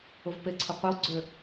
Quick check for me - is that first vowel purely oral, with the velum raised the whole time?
yes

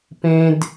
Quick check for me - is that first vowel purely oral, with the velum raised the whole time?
no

